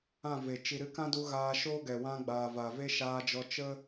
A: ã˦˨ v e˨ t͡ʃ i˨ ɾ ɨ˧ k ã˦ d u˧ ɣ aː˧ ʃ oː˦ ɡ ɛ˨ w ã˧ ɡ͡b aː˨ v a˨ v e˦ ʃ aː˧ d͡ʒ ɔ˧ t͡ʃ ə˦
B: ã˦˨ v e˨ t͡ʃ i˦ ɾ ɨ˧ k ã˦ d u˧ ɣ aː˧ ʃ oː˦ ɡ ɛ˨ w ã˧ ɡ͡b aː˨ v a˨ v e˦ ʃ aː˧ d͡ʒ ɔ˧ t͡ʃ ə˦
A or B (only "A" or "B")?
A